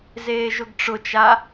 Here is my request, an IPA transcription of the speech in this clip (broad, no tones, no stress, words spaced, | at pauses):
zeːʒʊɡʈ͡ʂʊt͡ʃa